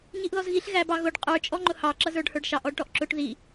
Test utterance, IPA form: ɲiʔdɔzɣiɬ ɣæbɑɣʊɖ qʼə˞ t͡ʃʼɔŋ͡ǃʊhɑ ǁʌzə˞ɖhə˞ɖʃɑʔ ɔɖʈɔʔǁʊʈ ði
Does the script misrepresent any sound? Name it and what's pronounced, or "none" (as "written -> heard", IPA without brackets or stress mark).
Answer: d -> ð